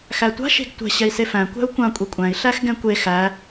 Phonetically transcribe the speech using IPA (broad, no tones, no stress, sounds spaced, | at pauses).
x æ tʷ a̤ ʃ e̤ ɡ tʷ ɛ̤ ɕ ɛ i̯ s e f æ̃ kʷ æ̤ u̯ kʷ ã kʷʼ e kʷʼ æ̃ i̯ ɬ æ x ɡ ɛ̃ kʷ e x æ